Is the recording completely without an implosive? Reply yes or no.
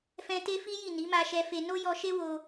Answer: yes